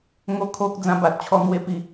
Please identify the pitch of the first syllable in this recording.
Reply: high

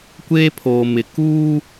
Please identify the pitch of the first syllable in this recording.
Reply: high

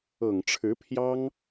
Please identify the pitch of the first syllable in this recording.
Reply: low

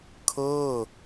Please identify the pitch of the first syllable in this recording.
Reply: falling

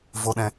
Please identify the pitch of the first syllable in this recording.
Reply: low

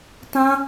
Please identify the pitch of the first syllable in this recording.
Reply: high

